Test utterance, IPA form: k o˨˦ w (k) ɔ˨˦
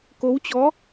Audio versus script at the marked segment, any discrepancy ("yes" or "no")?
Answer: yes